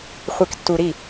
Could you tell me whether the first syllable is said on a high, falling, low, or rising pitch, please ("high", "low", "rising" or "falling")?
low